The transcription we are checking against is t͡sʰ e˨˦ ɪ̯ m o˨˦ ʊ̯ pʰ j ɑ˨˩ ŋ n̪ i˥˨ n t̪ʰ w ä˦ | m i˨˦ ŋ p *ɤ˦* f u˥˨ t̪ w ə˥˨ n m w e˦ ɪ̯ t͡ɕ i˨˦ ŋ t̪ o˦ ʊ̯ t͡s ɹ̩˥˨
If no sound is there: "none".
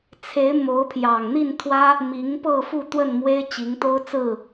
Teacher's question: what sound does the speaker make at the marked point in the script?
ɤ˥˨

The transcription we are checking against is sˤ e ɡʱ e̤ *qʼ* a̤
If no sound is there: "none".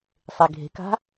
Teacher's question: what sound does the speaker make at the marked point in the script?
k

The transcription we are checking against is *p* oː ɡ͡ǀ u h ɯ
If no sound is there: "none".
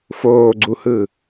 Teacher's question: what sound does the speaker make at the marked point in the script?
f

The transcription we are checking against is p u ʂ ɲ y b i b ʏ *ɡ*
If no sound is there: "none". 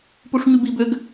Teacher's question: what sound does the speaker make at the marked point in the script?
ɡ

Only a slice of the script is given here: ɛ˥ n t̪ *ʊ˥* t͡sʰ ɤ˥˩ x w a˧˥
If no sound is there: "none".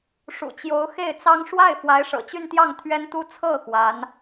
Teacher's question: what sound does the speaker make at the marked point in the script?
u˥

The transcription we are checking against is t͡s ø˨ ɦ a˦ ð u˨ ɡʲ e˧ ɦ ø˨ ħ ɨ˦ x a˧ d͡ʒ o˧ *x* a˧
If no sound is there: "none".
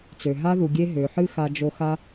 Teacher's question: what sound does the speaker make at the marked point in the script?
x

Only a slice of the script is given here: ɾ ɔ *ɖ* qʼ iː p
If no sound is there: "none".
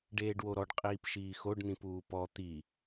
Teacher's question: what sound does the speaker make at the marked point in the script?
ɖ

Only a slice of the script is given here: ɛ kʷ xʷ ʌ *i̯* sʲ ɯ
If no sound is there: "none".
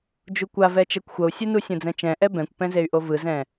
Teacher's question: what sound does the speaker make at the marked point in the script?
u̯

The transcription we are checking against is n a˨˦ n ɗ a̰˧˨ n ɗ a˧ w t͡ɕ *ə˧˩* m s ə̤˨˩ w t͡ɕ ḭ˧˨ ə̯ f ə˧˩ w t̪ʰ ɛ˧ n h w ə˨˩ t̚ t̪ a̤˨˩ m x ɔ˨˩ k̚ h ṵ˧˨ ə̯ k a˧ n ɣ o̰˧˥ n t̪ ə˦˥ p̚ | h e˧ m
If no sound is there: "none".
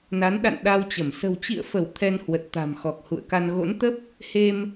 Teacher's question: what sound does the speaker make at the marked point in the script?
ə˧˩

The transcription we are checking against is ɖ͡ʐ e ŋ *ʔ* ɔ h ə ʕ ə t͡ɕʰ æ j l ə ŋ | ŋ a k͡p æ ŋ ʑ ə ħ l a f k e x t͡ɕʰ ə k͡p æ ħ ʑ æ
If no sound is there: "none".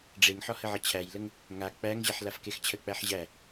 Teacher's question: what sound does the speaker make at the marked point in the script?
ħ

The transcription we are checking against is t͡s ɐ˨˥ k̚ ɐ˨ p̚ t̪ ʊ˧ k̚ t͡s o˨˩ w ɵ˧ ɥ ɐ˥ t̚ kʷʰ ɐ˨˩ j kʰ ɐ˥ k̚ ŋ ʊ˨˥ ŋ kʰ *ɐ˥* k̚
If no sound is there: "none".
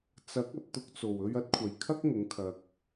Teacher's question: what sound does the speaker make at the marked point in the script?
ɐ˨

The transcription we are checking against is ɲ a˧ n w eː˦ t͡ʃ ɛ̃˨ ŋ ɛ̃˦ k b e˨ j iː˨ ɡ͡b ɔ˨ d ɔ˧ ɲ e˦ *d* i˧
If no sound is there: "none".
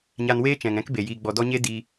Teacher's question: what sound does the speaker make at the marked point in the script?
d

